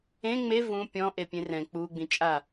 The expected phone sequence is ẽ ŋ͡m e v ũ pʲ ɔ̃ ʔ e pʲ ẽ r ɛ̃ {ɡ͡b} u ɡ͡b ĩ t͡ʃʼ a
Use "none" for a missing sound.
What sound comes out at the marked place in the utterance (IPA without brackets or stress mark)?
k͡p